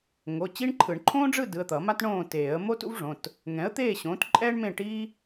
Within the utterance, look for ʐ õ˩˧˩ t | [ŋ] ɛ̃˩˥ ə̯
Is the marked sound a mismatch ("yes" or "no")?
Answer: no